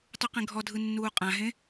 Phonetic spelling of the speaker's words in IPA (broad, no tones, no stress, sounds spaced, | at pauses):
tˤ u q ẽ ɡʱ ɔ dʱ ɯ nː uː qʼ ã ɦ ẽ